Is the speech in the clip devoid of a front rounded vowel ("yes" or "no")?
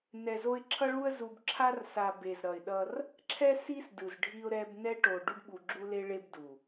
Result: yes